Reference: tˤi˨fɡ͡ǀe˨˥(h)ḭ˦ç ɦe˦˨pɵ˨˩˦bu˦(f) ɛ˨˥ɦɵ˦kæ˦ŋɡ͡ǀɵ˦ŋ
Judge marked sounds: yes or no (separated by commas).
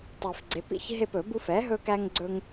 no, yes